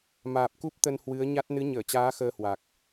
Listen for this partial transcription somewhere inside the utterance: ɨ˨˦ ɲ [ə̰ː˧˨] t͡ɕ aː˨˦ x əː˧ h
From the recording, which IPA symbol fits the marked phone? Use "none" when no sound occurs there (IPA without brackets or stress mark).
əː˧˩